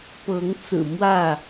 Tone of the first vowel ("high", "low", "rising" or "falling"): rising